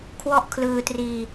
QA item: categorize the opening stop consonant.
aspirated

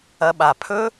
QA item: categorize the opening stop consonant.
implosive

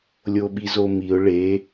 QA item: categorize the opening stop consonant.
implosive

